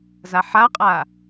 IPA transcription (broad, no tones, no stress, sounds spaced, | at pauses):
z a ħ a qʼ a